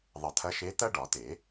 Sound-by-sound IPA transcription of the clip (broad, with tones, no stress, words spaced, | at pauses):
ðˤə˨˩˦t̪ʰɐ˧˥ʃe˧˥ t̪ɐ˥ɖɒ˨˩˦t̪e˨˩˦